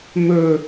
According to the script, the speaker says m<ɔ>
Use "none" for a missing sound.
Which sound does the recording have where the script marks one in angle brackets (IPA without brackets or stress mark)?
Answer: ɵ